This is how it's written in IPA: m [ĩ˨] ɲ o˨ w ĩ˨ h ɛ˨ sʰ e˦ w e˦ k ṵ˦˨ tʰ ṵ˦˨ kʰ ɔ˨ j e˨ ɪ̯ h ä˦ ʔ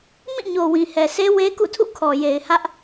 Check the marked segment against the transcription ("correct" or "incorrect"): incorrect